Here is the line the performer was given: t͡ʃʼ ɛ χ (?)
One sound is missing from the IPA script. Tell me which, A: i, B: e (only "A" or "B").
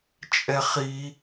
A